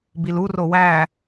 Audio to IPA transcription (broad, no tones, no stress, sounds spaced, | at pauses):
b i l u r o w æ